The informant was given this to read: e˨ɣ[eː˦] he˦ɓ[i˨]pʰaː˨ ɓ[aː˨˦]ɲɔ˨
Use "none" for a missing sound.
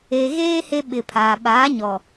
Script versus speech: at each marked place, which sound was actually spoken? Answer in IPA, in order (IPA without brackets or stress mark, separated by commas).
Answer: eː˦, ɪ˨, aː˨˦